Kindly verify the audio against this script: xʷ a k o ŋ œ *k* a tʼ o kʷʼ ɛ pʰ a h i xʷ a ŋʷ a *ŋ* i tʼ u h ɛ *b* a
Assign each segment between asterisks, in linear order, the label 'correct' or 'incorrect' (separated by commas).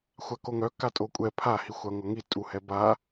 correct, correct, correct